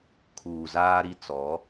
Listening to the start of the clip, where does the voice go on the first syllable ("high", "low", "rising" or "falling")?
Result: low